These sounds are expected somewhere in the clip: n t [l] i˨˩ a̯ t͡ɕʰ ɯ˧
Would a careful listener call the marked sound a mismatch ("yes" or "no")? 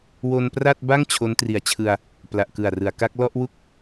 yes